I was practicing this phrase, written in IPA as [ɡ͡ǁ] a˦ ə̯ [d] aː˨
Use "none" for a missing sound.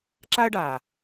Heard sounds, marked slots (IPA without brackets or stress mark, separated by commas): ǁ, ɖ